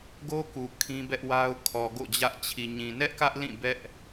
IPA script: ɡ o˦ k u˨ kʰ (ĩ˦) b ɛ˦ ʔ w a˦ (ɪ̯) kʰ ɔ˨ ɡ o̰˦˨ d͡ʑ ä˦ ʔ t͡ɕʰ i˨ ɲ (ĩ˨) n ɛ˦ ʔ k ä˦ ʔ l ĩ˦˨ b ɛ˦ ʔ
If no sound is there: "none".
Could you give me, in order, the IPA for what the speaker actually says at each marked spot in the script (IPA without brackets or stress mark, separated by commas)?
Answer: ĩ˦, ʊ̯, ĩ˨